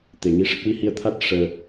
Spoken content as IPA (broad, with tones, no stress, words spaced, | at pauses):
t̪e˨˩˨ŋi˧˥ʂə˦˥k̚ wi˧hi˧ə̯t̪ʰa˦˥t̚ ʂəː˧